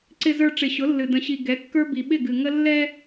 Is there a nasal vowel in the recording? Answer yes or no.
yes